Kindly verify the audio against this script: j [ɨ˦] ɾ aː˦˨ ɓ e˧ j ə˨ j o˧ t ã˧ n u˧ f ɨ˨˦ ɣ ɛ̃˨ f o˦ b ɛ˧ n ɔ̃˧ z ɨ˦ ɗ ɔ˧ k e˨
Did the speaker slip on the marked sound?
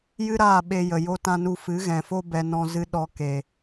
no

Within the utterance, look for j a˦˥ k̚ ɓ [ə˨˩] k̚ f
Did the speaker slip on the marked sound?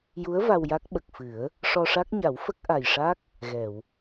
no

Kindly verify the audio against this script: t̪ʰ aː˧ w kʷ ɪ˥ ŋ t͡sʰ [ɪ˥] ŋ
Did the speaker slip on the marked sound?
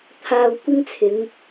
yes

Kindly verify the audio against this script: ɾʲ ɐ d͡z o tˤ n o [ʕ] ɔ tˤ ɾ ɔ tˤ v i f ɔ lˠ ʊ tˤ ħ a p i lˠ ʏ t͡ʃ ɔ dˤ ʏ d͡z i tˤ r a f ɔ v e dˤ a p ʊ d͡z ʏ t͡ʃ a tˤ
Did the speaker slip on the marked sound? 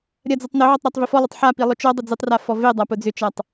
no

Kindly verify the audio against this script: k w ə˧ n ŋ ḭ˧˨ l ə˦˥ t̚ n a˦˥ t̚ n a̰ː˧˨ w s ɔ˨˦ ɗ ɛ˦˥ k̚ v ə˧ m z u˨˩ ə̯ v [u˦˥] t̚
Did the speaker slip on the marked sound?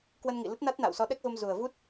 no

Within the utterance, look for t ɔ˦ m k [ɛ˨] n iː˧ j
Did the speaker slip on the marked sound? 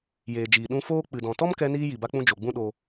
yes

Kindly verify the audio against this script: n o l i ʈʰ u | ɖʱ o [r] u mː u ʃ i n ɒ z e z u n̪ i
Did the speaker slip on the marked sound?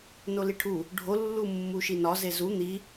yes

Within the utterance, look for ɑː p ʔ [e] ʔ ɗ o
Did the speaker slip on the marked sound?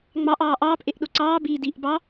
no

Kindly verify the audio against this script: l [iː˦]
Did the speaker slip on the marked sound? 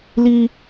yes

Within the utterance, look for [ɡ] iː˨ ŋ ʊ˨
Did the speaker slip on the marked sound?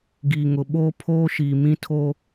no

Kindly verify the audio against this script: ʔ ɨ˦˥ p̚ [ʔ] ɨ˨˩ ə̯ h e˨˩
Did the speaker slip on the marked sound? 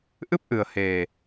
no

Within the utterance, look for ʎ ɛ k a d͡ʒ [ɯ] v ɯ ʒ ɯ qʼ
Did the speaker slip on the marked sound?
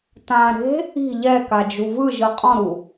yes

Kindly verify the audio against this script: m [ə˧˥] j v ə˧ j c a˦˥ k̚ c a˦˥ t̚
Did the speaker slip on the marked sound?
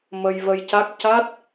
yes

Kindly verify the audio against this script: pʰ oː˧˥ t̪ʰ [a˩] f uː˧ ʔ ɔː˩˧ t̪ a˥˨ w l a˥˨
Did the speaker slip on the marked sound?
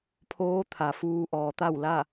no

